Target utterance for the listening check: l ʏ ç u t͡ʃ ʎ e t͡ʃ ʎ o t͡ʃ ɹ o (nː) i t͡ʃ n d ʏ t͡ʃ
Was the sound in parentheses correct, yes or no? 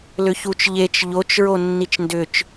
yes